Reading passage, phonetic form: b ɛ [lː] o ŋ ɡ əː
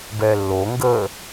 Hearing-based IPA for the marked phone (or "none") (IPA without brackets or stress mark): lː